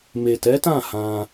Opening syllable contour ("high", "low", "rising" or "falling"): low